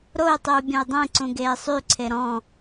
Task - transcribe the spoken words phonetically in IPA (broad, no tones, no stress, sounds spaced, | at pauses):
ɾ o y̯ tˤ y u̯ bʲ ɔ̃ y̯ dˤ ẽ ǀ ũ ɡ eː sˤ y ǀʰ e ɾ ɔ̃